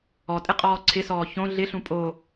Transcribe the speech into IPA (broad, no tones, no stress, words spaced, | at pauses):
ɔtʼɪqʼɔː ǀʰɪsɔː çõ ɮɪɬũ pʼo